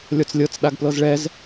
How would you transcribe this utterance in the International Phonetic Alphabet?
lʲɔt͡slʲɤt͡s ɗaɡplɤzɭɛz

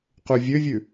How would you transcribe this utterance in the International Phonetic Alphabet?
qʉvʲøvʲʉ

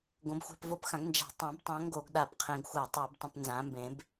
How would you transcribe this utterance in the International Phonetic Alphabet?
ɡõ˩˥bxʷe̤˧˩˧pvo˧˩˧pxã˩˥ɡ nd͡ʒa̤˧˩˧ tˤɛ̃˩˥btˤõ˩˥ŋɡo˧˩˧ɡ ɗa˧˩˧pqʰẽ˧˩˧ɡxʷa˧˩˧ tˤe˧˩˧b tˤə̃˧˩˧pnzã˩˥mbẽ˩˥b

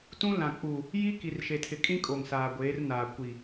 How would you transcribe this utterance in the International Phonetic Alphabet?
tũ˦lã˨ k͡pu˨ | ji˦ ki˨rʃe˨tʰɪ˨ kʼĩ˦kʼo˨ŋ saː˨ɡʷeː˨˦rnaː˨ kʷi˨

